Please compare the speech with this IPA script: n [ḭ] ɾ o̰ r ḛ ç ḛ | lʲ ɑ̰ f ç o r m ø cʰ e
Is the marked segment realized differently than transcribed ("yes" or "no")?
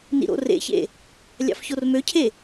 no